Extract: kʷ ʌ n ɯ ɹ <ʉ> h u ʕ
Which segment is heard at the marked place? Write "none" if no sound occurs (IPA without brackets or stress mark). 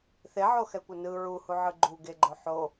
u